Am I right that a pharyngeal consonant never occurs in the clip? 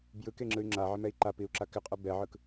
no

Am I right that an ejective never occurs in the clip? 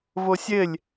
yes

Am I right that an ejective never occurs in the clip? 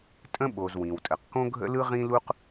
no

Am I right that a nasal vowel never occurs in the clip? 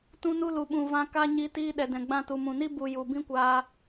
no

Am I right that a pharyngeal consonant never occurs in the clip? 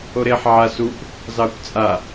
no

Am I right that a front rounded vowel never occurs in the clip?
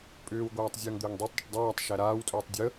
no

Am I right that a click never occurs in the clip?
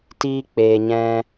yes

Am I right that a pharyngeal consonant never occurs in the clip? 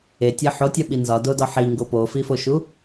no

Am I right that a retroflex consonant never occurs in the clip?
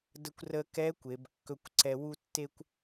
yes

